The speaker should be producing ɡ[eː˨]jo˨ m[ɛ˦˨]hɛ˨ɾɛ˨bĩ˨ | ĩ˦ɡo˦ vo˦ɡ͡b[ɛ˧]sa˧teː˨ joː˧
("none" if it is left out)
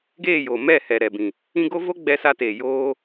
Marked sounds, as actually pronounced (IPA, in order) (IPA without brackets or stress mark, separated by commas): eː˦˨, ɛ˦˨, ɛ˧